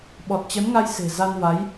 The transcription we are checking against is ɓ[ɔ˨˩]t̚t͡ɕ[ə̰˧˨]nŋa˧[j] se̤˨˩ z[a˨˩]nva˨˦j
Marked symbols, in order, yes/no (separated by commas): yes, no, yes, no